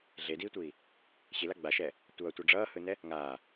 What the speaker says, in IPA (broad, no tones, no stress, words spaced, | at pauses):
ɮediːtʷiː | ɕila ɡ͡baʃɛː | tʷʌːtʷʌ ɖ͡ʐʌːhɯnɛ | ŋaː